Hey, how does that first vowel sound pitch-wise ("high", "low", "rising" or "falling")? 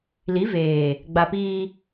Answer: rising